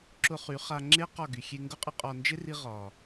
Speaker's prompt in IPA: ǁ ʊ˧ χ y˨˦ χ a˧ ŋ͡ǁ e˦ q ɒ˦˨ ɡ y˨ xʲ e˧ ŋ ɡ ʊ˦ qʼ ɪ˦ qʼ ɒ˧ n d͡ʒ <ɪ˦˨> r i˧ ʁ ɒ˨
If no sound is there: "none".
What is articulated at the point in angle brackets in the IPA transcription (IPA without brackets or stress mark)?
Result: ɪ˦